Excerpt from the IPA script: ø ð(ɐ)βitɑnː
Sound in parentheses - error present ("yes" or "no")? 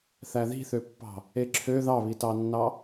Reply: yes